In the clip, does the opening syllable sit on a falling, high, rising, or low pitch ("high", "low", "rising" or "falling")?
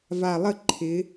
low